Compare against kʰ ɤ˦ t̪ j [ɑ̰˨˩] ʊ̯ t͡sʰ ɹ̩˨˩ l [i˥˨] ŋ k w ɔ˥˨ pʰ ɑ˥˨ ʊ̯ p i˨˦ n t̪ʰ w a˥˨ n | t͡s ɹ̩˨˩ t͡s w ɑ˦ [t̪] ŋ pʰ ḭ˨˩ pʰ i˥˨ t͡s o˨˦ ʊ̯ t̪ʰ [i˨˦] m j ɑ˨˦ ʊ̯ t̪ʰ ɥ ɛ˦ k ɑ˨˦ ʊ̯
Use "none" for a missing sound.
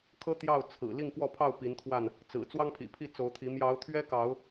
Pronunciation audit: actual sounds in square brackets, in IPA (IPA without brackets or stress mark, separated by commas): ɑ˥˨, i˥˨, none, i˨˦